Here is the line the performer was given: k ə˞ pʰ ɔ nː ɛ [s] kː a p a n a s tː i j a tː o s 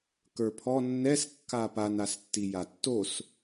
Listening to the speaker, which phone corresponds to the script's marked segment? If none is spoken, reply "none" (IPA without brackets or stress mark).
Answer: s